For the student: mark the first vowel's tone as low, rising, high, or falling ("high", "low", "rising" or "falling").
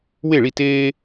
falling